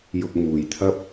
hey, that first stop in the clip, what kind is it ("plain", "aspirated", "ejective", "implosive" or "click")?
plain